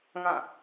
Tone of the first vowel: falling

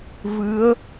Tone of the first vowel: rising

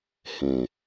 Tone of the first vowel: low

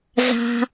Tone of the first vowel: low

